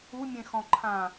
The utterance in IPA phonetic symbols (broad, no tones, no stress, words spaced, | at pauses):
umʲẽxɔ̃ǃʰã